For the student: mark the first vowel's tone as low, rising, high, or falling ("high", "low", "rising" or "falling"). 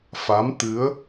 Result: rising